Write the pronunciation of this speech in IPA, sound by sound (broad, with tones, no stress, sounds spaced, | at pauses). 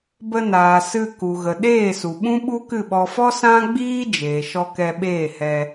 b ə˧ n aː˨ s ɨ˧ k u˨ ɣ ə˨ ɗ eː˦˨ s u˨ ɓ ũ˦ ɓ u˦ k ɨ˦˨ ɓ ɔ˧ f ɔ˦ s ã˦ ɡ͡b iː˦ d͡ʒ eː˨ ʃ ɔ˧ k ɛ˧ ɓ eː˦˨ h ɛ˧